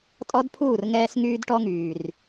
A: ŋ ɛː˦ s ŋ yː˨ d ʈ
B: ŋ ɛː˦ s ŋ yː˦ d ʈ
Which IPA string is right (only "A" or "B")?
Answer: B